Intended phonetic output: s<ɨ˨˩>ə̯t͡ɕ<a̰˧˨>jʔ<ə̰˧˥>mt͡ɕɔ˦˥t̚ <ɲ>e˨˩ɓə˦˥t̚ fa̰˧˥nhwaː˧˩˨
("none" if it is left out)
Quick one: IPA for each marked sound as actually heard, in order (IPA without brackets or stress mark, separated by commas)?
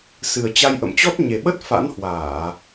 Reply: ɨ˨˩, a˧, ə̰˧˨, ɲ